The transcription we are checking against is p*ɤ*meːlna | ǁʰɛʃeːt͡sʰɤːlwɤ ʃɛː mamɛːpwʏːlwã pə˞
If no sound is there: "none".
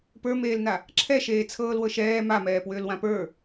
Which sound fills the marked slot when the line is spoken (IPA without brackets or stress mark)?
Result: ə˞